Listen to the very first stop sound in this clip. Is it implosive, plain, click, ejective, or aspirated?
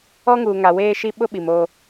implosive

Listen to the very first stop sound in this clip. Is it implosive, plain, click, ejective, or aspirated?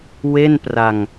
plain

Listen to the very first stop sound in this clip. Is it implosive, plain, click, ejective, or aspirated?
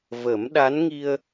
implosive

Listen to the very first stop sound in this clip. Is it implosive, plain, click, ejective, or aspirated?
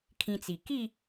aspirated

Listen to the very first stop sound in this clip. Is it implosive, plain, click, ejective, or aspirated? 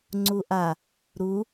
click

